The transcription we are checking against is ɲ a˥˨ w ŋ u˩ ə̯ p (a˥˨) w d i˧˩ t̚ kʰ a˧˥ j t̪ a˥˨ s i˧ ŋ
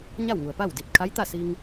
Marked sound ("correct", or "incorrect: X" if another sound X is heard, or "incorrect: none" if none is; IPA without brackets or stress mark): correct